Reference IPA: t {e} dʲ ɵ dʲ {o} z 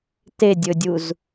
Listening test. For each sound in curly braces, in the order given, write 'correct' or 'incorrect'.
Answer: correct, incorrect

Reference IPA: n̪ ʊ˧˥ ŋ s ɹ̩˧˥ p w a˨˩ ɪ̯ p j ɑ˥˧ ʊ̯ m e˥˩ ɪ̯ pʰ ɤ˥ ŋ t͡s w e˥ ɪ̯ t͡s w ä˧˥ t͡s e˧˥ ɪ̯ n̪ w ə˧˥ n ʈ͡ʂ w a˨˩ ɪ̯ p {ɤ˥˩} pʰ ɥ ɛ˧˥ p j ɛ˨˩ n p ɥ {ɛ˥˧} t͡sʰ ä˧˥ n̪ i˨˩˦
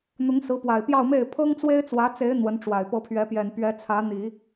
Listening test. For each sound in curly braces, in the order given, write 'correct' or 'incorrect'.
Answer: incorrect, incorrect

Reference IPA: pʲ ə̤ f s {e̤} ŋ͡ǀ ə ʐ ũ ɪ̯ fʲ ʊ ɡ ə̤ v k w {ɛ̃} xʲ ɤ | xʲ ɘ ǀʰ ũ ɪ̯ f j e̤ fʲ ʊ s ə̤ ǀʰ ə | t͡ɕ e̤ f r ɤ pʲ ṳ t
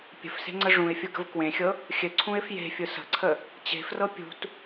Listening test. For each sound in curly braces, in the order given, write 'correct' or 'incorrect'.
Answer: correct, incorrect

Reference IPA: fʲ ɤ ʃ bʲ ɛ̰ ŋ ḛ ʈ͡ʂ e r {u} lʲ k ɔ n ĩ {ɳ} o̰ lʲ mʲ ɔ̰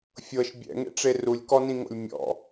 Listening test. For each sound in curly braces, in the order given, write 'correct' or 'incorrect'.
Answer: correct, incorrect

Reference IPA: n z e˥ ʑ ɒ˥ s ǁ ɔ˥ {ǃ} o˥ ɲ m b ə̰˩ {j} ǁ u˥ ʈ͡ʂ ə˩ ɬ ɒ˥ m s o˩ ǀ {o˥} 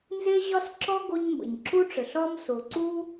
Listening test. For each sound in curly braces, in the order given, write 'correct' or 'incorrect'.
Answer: incorrect, incorrect, incorrect

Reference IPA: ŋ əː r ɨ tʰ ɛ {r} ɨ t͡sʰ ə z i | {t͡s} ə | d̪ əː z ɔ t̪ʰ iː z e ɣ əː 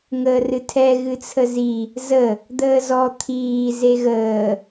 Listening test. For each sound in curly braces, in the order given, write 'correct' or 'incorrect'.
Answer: incorrect, incorrect

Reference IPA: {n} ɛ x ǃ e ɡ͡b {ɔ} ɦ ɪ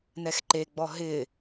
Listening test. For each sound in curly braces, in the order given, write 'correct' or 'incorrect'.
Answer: correct, correct

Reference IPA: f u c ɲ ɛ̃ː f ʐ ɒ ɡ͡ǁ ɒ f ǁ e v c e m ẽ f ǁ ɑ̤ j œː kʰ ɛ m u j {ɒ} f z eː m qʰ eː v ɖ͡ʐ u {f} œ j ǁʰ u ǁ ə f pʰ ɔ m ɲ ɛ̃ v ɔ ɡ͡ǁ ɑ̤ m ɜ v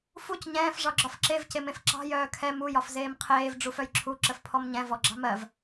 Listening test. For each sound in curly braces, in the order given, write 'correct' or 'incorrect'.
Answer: correct, correct

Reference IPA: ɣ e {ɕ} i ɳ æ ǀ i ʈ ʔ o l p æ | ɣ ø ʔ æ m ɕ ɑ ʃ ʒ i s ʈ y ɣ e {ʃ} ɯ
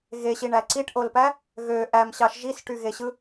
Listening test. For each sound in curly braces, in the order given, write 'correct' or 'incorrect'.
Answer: correct, incorrect

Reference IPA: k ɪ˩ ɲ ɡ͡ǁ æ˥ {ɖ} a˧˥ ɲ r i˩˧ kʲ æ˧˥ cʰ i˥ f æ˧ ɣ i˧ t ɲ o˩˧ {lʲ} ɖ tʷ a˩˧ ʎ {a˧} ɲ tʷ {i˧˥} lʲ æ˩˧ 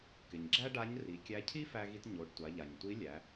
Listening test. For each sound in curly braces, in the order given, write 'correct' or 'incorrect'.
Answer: correct, incorrect, incorrect, correct

